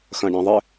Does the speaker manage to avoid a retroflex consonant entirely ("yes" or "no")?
no